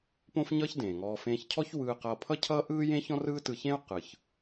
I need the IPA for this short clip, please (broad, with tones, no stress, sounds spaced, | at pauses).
p õ˥ f ɲ ʌː˥ ç d ẽː˩ ŋ ɔː˧ f ẽː˧ ç cʰ ɔ˥ ç w ɯː˧ q ʌː˧ pʰ ʌ˥ cʰ ʌː˥ ʔ ɯː˥ j ẽ˥ ç ɔ̃˥ r ɯː˥ t ɯ˧ ç ẽ˥ u̯ q ɯ˩ ç